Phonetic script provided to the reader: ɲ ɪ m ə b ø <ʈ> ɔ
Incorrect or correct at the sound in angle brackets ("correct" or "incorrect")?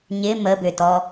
incorrect